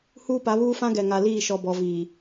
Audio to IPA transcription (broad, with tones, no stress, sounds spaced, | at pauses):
h uː˦ p a˨˦ β uː˦ f ã˦ ɡ ɛ˨ ŋ a˨ l iː˦˨ ʃ ɔ˨ b ɔ˨ v iː˨